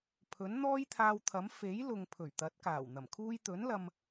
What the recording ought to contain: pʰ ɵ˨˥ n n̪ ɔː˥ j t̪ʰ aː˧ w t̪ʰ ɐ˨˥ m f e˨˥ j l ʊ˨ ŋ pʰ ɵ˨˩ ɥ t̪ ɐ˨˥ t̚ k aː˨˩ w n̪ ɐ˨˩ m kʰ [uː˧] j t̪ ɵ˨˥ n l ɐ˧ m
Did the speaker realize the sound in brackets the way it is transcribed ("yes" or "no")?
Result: yes